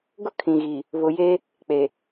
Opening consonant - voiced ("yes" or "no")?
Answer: yes